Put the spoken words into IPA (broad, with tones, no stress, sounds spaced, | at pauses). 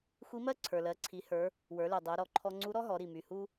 xʷ i˧˥ m ɜ˥ ǀʰ ə˞˩ l ɜ˩˧ ǀʰ i˩˧ h ə˞˩˧ | w ə˞˩˧ l y˩ dˤ o˩˧ ɾ ɔ˩˧ ǃʰ ɔ˧ ŋ͡ǀ u˧˥ ɾ ɔ˥ ɦ ɔ˩˧ ɾ i˩ m y˩ h u˧